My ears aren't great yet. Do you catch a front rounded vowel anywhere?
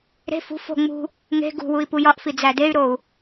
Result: yes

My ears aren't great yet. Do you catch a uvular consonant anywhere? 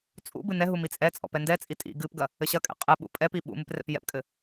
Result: yes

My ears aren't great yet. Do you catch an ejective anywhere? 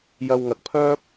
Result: no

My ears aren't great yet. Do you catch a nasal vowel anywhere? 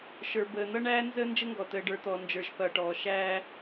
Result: no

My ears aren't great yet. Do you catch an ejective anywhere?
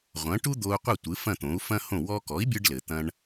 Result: no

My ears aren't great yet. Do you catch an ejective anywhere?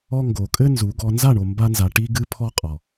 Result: yes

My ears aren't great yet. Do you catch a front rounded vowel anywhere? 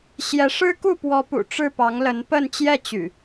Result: yes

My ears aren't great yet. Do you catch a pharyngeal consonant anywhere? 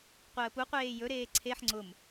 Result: yes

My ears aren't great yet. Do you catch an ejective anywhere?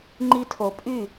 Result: yes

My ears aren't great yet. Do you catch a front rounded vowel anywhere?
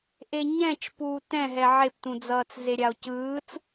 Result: no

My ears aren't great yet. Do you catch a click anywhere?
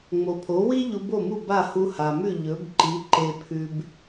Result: yes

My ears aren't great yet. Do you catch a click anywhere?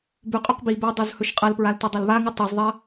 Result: no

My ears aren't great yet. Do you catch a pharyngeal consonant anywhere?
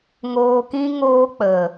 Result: no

